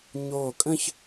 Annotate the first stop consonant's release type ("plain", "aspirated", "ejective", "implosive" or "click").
ejective